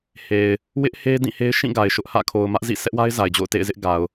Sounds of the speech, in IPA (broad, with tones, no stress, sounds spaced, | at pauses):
h e˨ ɪ̯ | w ɪ˦ ʔ h e˦ d ĩ˦˨ h e˦ ɪ̯ ʃ ĩ˦˨ ɡ a˨ ɪ̯ ʃ ʊ˦ ʔ h ä̰˦˨ kʰ o˨ ʊ̯ m ä˦ ʔ z ḭ˦˨ sʰ ɛ˦ ʔ w a˦ ɪ̯ z a˨ ɪ̯ d͡ʑ o̰˦˨ ʊ̯ t ḛ˦˨ ɪ̯ z ɪ˦ ʔ ɡ a˨ ʊ̯